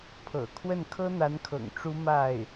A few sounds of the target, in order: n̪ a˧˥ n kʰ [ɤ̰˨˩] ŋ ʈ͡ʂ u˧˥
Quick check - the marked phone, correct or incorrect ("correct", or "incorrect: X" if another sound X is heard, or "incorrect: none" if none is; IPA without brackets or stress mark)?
correct